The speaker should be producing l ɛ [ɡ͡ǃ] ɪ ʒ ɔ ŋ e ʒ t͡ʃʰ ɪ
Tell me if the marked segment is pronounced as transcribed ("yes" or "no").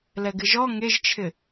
no